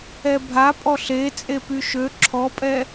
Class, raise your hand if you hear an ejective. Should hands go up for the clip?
yes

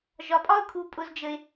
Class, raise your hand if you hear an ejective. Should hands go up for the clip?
yes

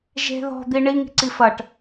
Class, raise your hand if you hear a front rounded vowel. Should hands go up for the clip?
no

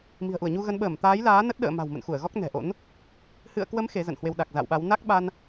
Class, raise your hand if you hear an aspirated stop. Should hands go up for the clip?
no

